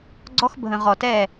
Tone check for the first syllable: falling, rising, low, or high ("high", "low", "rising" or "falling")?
high